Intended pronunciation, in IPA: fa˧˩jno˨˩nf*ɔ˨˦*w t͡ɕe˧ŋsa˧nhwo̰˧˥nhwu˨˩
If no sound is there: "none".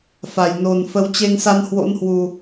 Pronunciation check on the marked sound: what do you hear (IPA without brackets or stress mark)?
ə˨˦